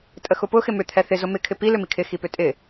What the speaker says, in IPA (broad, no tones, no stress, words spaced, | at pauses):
tʼəxʊpʊ xɪmʏ t̪ʰɛθɪ zʊmɪ kʰɪpi lʏmikʰɪ xipʏtʼɪ